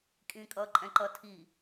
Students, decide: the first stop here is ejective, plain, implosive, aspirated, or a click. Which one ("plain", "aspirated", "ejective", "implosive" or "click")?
ejective